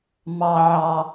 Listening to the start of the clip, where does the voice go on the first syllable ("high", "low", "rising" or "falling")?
high